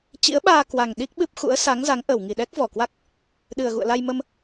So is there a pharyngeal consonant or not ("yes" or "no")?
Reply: no